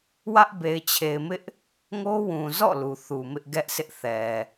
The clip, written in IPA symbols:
w ä˦ ʔ b e˨ ɪ̯ t͡ɕʰ e˨ ɪ̯ m ɪ˦ ʔ | ŋ o˦ w ũ˨ z ɔ̰˦˨ l u˨ θ u˨ m ɪ˦ ʔ ɡ ɛ˦ ʔ sʰ ɪ˦ ʔ θ ɛ˨

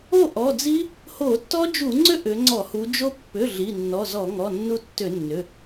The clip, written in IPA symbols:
o˥˨ ʔ ɔ˩˧˩ d͡z i˦˥ | h o˧˩˧ tː ɔ˦˥ d͡ʒ u˧˩˧ ŋ͡ǀ ʏ˦˥ ʔ ʏ˩˧ ŋ͡ǀ ɔ˧˩˧ h u˩˧ d͡ʒ o˦˥ pː ʏ˩˧˩ ɮ i˩˧˩ nː ɔ˩˧˩ z ɔ˧˩˧ ŋ ɔ˩˧˩ nː u˧ tː ʏ˧˩˧ nː ʏ˩˧˩

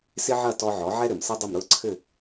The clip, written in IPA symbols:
s ɪ˥ ʕ ɐ˥˩ t ɔ˧ ʕ ɔ˩˥ ʕ ɛ˥ ɾ ɘ˩ m s ə˥ dˤ ʊ˥˩ m ɾ ʊ˥˩ ə̯ ǀʰ ɘ˥˩

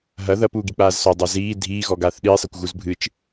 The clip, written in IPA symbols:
ɦ ɐ ð ɐ p uː ɡ i k͡p aː z s ɔ dˤ a z iː dʱ iː ɣ ɔ ɡ aː θ ɗ iː sˤ ɛ kʷ ɣ u z bʱ ɨ t͡ʃ

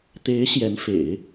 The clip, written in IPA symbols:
t̪ e˧˥ ɪ̯ ɕ j ɛ˧˥ n f ḛ˨˩˦ ɪ̯

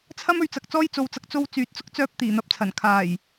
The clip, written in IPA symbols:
t͡sʰ ɐ˧ m ɵ˨ ɥ t͡s ɐ˨ k̚ t͡s ɔː˧ j t͡s o˨ w t͡s ɐ˨ k̚ t͡s o˧ w t͡s yː˨˥ t̚ t͡s ʊ˥ k̚ t͡s œː˧ p̚ t̪ iː˨˩ n̪ ɐ˨˥ p̚ t͡sʰ ɐ˨˩ n kʰ aː˨˩ j

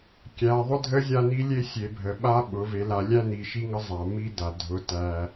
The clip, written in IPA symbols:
kʲ æ˩˧ ðˤ ʊ˦ dʱ ə˦ zʲ a˥˨ n i˦ lʲ e˦ sʲ e˩˧ bʱ ə˩ ɓ a˦ ɓ ʊ˩˧ v e˩˧ l a˩˧ lʲ æ˦ n i˩˧ ʃ i˦ ŋ ə˦ zˤ a˩ m i˦ d a˩ dʱ ʊ˩˧ t æ˩

